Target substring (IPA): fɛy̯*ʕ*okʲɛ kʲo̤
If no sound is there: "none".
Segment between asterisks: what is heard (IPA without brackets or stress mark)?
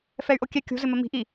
ʔ